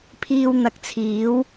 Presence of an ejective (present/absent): absent